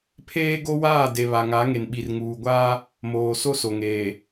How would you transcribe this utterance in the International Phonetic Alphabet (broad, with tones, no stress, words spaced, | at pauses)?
pʰeː˦ɡo˦waː˦˨ de˨βa˨ŋa˨˦ ŋe˨nɓi˨rŋuː˨ɡʷaː˦ | moː˨ so˦so˨ŋeː˨